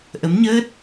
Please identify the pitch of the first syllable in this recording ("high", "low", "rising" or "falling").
rising